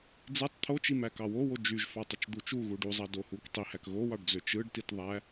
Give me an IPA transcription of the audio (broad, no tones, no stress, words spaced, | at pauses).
d͡zɯtˤ t̪ʰot͡ʃimæ kɑwowo d͡ʒyʒfɑtˤut͡ʃ d̪ut͡ʃu ɣuɖuzˤɑ dohuk tˤihæk ɣowɑɖd͡zø t͡ʃɯɖtitðˤæ